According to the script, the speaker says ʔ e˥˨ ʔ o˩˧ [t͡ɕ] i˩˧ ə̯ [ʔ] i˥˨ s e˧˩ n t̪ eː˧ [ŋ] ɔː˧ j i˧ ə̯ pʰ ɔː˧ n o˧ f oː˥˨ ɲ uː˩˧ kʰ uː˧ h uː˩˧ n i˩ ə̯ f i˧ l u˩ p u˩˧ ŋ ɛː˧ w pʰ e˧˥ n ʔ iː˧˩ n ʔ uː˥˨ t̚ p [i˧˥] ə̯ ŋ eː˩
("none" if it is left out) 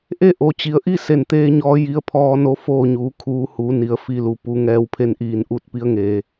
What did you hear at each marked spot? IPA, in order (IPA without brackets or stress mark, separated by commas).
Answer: t͡ɕ, ʔ, ɲ, i˧˥